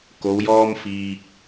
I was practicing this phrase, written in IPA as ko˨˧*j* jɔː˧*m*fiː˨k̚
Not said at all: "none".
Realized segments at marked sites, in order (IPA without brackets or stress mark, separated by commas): w, m